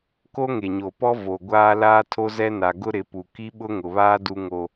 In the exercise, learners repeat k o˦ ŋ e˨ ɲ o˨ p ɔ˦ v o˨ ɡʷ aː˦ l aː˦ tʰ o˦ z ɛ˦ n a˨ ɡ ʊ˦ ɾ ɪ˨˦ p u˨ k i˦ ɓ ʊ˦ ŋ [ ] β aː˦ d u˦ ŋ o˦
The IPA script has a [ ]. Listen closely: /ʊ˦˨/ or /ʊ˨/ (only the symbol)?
ʊ˨